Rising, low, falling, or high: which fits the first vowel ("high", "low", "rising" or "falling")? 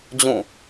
falling